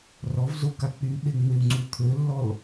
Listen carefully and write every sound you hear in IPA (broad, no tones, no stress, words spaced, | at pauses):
rɔvzoka k͡pyɓeŋ͡meu̯ŋ͡ǀu t̪ʰølːɔl